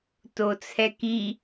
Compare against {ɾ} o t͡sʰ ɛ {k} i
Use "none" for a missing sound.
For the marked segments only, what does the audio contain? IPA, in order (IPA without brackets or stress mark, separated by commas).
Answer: t, k